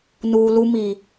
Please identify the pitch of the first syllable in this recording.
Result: low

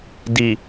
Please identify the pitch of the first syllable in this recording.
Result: low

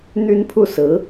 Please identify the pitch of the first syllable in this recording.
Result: high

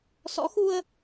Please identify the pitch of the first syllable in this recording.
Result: rising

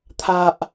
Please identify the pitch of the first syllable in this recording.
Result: low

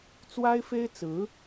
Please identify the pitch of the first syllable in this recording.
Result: high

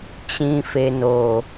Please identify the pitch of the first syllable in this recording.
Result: low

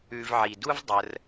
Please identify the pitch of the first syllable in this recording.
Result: low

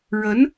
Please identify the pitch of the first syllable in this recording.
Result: rising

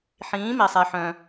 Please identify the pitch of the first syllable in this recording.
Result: rising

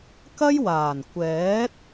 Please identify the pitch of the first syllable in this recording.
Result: high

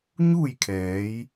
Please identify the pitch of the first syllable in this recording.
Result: falling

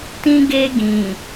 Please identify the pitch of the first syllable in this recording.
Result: high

